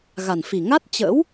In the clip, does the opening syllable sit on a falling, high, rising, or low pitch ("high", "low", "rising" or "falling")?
low